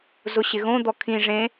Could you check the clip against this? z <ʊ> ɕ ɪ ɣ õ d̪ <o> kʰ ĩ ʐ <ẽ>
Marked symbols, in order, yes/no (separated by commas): yes, no, yes